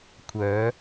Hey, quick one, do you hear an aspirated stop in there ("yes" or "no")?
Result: yes